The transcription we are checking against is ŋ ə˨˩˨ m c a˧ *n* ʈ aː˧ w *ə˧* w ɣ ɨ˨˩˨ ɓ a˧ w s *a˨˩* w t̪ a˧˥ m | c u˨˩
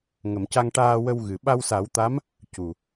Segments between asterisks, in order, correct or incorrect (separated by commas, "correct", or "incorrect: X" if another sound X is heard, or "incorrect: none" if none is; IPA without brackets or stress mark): incorrect: ŋ, correct, incorrect: a˨˩˦